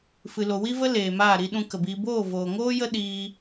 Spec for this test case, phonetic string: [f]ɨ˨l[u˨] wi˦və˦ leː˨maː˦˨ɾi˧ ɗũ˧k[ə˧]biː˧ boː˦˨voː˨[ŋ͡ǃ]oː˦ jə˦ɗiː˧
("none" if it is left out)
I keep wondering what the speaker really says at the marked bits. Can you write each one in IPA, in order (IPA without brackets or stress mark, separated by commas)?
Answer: f, o˨, ə˨, ŋ